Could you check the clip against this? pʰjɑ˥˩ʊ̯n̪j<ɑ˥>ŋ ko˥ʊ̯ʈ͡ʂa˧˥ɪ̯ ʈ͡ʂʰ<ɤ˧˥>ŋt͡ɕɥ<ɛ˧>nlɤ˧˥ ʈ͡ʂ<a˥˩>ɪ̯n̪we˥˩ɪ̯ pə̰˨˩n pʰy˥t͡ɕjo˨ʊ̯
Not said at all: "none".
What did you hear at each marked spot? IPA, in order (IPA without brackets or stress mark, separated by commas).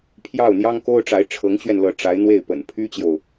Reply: ɑ˥, ɤ˧˥, ɛ˧, a˧˥